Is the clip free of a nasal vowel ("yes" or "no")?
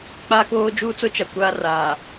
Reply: yes